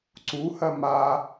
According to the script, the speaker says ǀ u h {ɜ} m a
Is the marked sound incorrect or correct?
correct